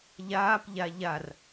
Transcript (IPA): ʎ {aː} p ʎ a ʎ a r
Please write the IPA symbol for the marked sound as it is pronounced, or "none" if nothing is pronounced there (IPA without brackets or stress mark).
aː